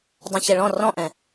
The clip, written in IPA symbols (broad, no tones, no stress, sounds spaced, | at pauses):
dˤ ɛ̃ ç ɛ ɭ ɔ̃ r ɔ̃ ʔ ɛ̃